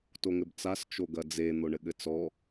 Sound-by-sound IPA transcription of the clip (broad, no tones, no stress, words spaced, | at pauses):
toŋɘbt͡sas t͡ʃoɡɐd͡ze n̪oɳɘɠɘt͡sɔ